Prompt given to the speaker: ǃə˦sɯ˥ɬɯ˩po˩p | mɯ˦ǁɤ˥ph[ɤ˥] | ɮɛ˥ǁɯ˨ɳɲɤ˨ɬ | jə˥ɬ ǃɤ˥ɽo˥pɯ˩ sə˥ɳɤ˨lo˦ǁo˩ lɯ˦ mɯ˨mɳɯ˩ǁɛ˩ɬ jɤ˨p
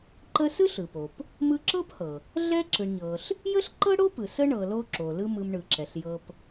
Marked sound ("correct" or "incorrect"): incorrect